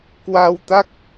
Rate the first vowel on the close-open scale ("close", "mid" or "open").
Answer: open